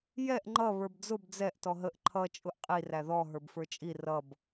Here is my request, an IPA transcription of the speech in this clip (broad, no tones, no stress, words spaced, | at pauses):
jɛʔ ŋ͡ǃʌ βə˞bd͡zʊb d͡zɛʔ tɔɦəʔ ǃʰʌ t͡ʃʼʊʔqʼi ræðɔ ɦə˞bfə˞t͡ʃʼi rʌb